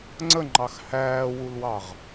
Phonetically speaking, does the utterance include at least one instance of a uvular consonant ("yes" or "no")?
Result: yes